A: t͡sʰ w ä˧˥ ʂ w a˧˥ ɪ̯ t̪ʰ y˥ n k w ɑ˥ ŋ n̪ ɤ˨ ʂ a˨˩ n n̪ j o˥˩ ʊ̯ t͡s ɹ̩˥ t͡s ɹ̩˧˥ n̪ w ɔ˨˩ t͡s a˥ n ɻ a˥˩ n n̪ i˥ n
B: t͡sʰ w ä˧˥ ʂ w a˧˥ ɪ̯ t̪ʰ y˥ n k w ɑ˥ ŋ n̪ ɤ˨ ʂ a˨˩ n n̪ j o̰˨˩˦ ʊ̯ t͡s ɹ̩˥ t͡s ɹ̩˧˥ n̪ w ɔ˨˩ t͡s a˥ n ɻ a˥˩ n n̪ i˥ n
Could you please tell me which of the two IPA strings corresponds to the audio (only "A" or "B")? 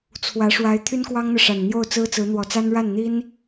A